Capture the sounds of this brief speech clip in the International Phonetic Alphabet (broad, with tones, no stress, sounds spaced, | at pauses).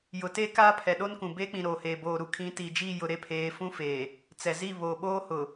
j ʊ˨ t eː˦ k aː˦ pʰ ɛ˨ ɗ o˦ n k ũ˨ b eː˦ k͡p ĩ˨ ɾ oː˨ h eː˨ b oː˨ ɾ u˨ kʰ ĩ˨˦ t iː˨ d͡ʒ iː˦˨ j ʊ˨ ɾ e˦ pʰ eː˨˦ f ũ˦ f eː˨ | t͡s ɛ˨ z i˦˨ β o˨ ɓ oː˦ h ʊ˨